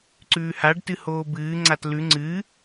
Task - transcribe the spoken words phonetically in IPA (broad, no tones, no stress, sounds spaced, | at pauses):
ǀ ʉː h a ɖ t ɨ h oː b ɨː ŋ͡ǀ a t l ʉ ŋ͡ǀ ɨ